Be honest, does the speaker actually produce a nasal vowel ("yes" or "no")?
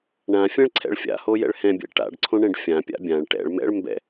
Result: yes